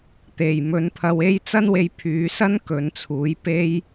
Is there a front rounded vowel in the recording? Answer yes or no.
yes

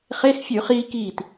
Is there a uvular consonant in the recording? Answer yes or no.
yes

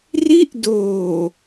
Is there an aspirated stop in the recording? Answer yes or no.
no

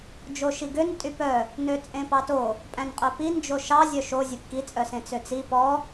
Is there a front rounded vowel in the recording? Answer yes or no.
yes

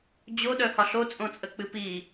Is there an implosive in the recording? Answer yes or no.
yes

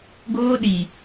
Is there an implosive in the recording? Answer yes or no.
yes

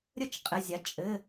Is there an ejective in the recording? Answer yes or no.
yes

